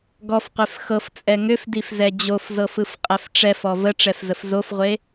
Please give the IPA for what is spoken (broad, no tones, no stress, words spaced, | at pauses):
ɡɔfqʷef xɤft͡sʼɛ ŋʏfdifzɛ d͡ʑofzɤfɯfqʼɛf ʈ͡ʂɛfɔ vəʈ͡ʂɛfzəf zofʁʷe